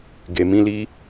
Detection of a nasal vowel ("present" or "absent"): present